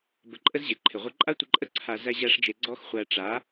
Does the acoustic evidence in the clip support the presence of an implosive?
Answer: no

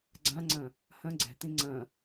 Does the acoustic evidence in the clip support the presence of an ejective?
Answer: no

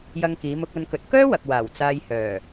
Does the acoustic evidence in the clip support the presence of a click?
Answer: no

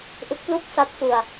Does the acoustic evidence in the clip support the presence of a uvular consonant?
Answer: no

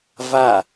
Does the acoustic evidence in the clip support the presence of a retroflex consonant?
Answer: no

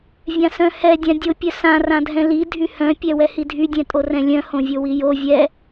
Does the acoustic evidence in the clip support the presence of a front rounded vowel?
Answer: yes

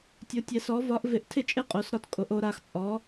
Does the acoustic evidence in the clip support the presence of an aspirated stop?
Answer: yes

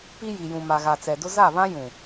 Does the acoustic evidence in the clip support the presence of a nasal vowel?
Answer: yes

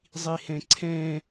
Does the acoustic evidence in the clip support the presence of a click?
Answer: yes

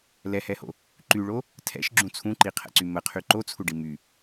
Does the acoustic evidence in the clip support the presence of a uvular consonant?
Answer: yes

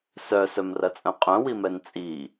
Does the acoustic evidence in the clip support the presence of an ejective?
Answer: yes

